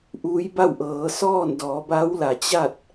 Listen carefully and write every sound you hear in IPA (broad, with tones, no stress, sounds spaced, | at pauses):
ʔ uː˧˥ j b a˥˨ w ʔ ɤː˩˧ s ɔː˥˨ n d ɔː˩˧ b a˧˥ w l a˩ t͡ɕ a˥˨ t̚